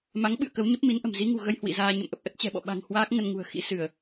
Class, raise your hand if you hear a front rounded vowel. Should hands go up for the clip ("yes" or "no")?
no